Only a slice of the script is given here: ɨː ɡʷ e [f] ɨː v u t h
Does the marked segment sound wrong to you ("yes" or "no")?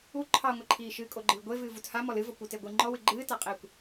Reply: yes